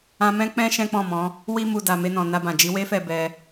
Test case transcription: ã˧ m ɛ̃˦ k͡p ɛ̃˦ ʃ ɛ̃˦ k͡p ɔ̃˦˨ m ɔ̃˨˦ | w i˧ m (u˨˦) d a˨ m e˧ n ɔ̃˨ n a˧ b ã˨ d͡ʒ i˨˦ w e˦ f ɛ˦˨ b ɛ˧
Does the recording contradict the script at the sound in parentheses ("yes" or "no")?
yes